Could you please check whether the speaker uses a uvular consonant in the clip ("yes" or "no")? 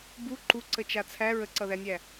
no